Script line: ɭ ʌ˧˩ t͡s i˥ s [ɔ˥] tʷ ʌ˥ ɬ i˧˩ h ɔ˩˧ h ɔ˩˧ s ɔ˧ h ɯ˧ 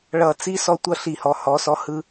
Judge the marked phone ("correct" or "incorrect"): correct